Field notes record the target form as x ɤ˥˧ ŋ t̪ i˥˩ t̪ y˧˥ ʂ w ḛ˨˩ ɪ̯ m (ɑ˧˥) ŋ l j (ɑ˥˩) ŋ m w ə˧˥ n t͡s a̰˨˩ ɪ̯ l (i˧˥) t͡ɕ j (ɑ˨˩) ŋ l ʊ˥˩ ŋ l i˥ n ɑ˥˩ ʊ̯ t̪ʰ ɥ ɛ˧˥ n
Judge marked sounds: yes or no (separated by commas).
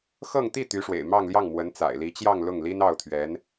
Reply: no, yes, yes, no